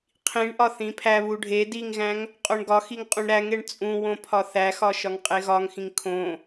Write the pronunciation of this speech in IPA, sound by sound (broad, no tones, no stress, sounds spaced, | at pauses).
qʰ ĩ ɳ ʔ ɒ θ ĩ pʰ æ β u ɖʱ e d i ŋ ɣ æ̃ ŋ | qʼ o ɳ ɡ ɒ x i ŋ qʼ ũ ɳ ɾ æ ŋ e ɳ t͡sʼ ũ w õ pʰ ɒ θ æ x ɒ ʃ ɒ ŋ qʼ e ɣ ɒ ŋ x ĩ ŋ kʰ õ